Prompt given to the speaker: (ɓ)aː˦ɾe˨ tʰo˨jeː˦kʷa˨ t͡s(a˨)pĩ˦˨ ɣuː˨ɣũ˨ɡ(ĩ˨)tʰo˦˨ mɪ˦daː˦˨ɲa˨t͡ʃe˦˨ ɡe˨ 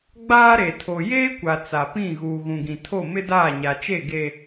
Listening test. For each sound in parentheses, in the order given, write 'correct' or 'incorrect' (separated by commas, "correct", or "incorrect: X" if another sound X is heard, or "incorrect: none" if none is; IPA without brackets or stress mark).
incorrect: ɡ͡b, correct, correct